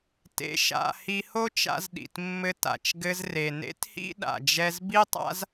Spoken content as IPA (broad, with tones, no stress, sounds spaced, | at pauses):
t ḛ˧ ʃ a̰˧ h i˧ h o˥ t͡ʃ a̰˧ z ɗ ḭ˩ t mː ɘ˧ t a̰˩ t͡ʃ ɡ ɘ˧ z r e˩ n ḛ˥ t h ḭ˥ ɗ a̰˩ d͡ʒ ɛ˧ z b i˥ tˤ a̰˥ z